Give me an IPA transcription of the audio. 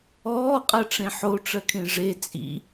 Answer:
ɔː qʼ ɜ ʈ͡ʂ ẽ ħ o ʈ͡ʂ ɜ kʰ ẽ ʐ e t͡sʼ ḭ

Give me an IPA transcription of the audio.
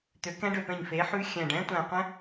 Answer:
t̪ ø˩˥ k ɛ̃˦˥ ɖ ø˧˩ p ɛ̃˧˩ ɲ f e˩˥ ħ ʉ˦˥ xʲ æ̃˧˩ ɖ ɛ̃˦˥ tʷ æ̃˧˩ qʷ ɛ̃˦˥

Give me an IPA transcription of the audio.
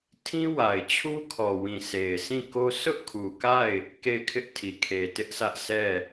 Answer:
tʰ ĩ˦ w a˨ ɪ̯ t͡ɕʰ u˦ kʰ ɔ˨ w ĩ˨ s e˨ ɪ̯ s ĩ˦˨ k o˦ sʰ ʊ˦ ʔ kʰ u˨ k a˦˨ ɪ̯ | k e˦˨ ɪ̯ kʰ ɪ˦ ʔ tʰ i˨ kʰ e˨ t ɪ˦ ʔ s ä˦ ʔ s ɛ˦˨

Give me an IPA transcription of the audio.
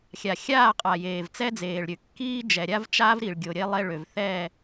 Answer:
xʲ a˨ xʲ aː˦˨ qʼ a˨ j eː˨ v t͡s ɛ˦ d͡z eː˨ ɭ ɾʲ ø˨ kː iː˦ d͡ʒ ɛ˨ ɾʲ a˦ v t͡ʃ a˦ v ɾ i˨ ɭ ɡʲ o˨ ɾʲ e˦ lˠ e˦ ɭ ø˨ v θ ɛ˦˨

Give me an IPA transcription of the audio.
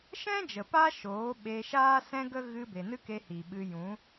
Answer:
ʃ ɛ̃˦ d͡ʒ ə˨ p a˦ ʃ oː˨˦ ɓ e˧ ʃ aː˦ s ɛ̃˦ ɡ ə˦ ɣ ɨ˧ b e˨ n ɨ˦ k e˧ h i˨ ɓ ɨ˧ j ũ˨˦

